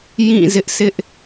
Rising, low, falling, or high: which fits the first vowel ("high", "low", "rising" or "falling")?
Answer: falling